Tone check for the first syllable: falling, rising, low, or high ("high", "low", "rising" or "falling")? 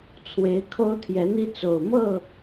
rising